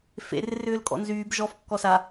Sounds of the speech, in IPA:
fḛrɪ rʏːlkʼɔ̰nzyːb ʒɔfkːɔ sa

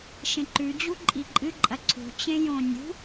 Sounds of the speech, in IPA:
ʃẽǃʉ d͡ʑuǃʼiǃʼɨ ǃʼɐǀʰṳ t͡ɕẽjõnʲṳ

